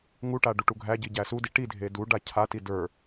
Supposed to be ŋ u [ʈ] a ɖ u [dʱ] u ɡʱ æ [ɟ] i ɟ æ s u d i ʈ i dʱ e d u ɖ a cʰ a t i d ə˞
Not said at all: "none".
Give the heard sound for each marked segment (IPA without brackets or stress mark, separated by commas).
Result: ʈ, ʈ, ɟ